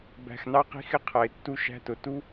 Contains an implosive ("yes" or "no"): no